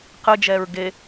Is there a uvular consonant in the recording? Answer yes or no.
yes